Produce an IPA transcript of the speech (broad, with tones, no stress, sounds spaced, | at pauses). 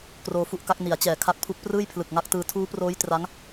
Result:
k r oː˧ f u˦˥ ʔ k a˦˥ k̚ n i˩˦ a̯ t͡ɕ ɛː˨˩ kʰ a˦˥ k̚ pʰ u˦˥ k̚ p r ɯː˥˩ j pʰ l ɯ˨˩ k̚ ŋ a˦˥ k̚ t ɯː˧ tʰ uː˦˥ p r oː˦˥ j t r a˦˥ ŋ